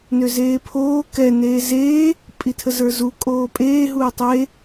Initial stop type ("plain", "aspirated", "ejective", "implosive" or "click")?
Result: aspirated